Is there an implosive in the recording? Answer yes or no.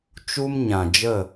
no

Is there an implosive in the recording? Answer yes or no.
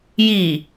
no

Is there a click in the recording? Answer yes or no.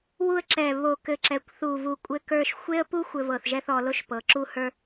yes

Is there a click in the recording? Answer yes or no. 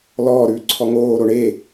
yes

